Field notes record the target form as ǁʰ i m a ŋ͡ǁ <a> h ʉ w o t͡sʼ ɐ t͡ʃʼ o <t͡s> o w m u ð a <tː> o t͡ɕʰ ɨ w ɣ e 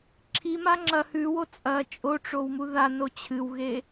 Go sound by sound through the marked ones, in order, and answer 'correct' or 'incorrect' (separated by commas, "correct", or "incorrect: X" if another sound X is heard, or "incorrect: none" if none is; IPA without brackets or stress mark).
incorrect: ɐ, incorrect: ʈ͡ʂ, incorrect: n